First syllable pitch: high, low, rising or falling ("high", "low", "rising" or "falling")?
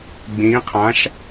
rising